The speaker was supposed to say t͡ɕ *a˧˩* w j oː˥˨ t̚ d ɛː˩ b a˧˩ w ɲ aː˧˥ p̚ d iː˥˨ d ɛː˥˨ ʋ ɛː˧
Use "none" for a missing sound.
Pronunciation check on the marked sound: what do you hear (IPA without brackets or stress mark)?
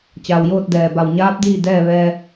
a˩